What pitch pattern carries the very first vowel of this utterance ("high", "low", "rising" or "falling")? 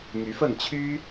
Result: rising